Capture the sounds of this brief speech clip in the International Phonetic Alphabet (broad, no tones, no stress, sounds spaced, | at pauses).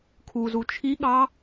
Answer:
kʰ u z u t͡ʃʰ i ɠ ɑ